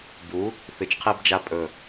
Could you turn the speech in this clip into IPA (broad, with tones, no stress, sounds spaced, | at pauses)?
b u˨˦ | θ ɨ˨ t͡ʃ qʰ i˦ b d͡ʒ a˦ pʼ ɵ˨